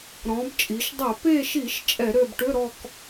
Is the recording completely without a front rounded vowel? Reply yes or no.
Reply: no